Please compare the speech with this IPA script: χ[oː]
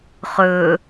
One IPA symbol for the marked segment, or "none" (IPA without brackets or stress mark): ɵː